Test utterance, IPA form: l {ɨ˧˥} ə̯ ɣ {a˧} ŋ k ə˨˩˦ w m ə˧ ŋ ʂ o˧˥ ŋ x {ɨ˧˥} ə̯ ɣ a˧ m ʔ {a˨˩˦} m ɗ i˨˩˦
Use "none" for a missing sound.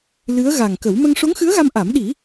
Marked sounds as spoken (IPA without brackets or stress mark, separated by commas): ɨ˧˥, a˨˩, ɨ˧˥, a˨˩˦